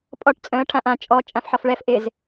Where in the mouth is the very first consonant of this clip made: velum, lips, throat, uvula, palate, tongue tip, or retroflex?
lips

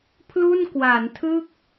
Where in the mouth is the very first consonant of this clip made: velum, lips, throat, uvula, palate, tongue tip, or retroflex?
lips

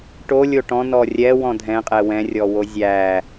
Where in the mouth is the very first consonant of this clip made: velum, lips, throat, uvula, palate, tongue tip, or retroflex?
retroflex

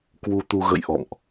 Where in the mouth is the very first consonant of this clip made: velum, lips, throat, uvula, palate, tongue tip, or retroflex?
velum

